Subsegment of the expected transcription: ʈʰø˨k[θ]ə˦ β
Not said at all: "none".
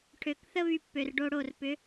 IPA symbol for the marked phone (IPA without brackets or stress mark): θ